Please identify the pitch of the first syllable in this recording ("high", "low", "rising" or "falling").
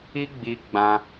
high